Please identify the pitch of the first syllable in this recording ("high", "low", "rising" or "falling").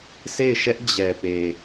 falling